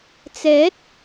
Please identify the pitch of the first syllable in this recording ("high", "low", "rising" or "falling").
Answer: rising